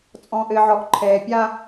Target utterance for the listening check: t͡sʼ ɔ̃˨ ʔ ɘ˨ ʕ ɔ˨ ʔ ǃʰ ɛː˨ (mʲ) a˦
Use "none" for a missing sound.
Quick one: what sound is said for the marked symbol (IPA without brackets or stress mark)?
pʲ